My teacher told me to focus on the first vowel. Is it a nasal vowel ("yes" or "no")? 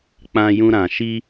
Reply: yes